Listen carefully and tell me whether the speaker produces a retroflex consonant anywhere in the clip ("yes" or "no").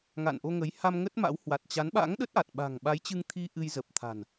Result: no